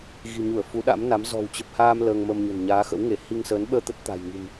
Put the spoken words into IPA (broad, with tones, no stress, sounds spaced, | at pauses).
ɣ i̤˨˩ ɲ u˧˩ ə̯ f u˨˦ ɗ a̰˧˥ m n a˨˦ m z ɔ̤˨˩ w t͡ɕ ə˨˩ p̚ h aː˧ m l əː˧ ŋ m ə˧ m ɲ ə̤˨˩ n ɲ aː˨˦ x ə̰˧˥ w ŋ e˧˩ h i˧ ŋ s əː˨˦ n ɓ əː˧ t̪ ə˦˥ t̚ t̪ a̤˨˩ j ŋ i̤˨˩ m